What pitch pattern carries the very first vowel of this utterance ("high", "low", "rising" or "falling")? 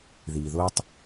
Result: low